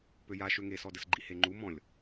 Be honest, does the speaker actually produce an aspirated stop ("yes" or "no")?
no